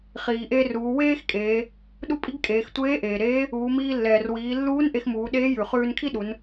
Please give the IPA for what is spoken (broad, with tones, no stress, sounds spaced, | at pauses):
χ iː˩ ʔ eː˧ r uː˩˧ w eː˥ x kʼ eː˩˧ | ɗ u˥ pʼ i˥ ɡ kʼ eː˩˧ x tʷ eː˧˥ ʔ eː˩ ɾ eː˧˥ | uː˩˧ m iː˧ lː ɛː˩ r w iː˩˧ lː uː˧˥ n ʔ e˧ x m uː˩˧ ɗ eː˧˥ j ʉ˩ χ ʉː˧ n kʰ i˥ ɗ u˩˧ n